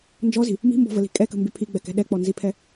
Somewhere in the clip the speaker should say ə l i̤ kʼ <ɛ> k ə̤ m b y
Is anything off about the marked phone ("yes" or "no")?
no